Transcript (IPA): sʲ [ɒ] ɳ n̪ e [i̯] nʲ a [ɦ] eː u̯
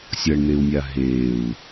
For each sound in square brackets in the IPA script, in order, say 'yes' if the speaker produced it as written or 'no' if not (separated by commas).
no, no, yes